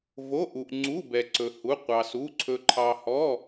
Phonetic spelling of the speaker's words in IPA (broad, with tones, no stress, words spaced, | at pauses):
vo˧˥˧ʔu˧ʔŋ͡ǀu˧˥˧ bɛ˧ǀɵ˧hu˧˥˧ qʷɑ˧su˧˥˧ ǀʰɵ˧ǃʰɑ˧hɔ˧˥˧